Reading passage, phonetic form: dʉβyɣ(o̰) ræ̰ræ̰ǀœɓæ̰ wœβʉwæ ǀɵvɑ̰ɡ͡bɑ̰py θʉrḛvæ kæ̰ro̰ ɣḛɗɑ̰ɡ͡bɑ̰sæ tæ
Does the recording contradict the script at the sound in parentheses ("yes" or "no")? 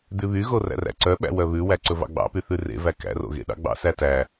yes